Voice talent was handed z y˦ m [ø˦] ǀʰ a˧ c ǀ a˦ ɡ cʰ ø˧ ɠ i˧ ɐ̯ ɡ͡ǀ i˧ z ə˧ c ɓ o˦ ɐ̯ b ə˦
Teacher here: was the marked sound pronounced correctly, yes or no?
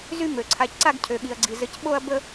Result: no